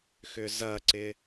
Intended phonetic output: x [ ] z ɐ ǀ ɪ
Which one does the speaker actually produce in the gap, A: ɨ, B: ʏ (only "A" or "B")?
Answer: B